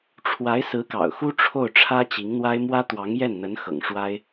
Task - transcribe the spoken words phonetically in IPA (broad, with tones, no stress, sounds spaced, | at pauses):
ʈ͡ʂʰ w a˧˥ ɪ̯ s ɹ̩˧˥ k ɑ̰˨˩ ʊ̯ x u˥ ʈ͡ʂʰ o˥˩ ʊ̯ ʈ͡ʂʰ ä˥ t͡ɕ i˧˥ ŋ n̪ w a˥ ɪ̯ m w ä˥ t̪ w ɑ˧˥ ŋ j ɛ˥˩ n n̪ ə˧˥ n x ɤ̰˨˩ ŋ ʂ w a˥ ɪ̯